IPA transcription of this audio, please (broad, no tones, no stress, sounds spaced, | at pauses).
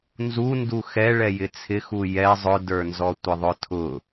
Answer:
n z u n d u x ɛ ɭ ɛ j ɪ t͡sʰ ɪ x u j ɛ zˤ ʊ d ə˞ n z ɔ tʷ ɪ ðˤ ʊ tʰ ʊ